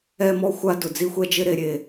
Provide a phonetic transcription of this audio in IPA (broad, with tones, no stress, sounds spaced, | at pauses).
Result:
ɛ˦ m ɔ˦ xʷ a˦ d ʊ˨ d͡z i˦ xʷ ɛ˦ d͡ʒ ɪ˦ ɾ e˦ ɾʲ e˦